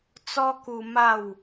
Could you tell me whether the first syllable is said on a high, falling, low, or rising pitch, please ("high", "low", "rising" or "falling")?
high